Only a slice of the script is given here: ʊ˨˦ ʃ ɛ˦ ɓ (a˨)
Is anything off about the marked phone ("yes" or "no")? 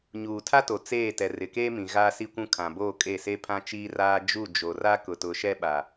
no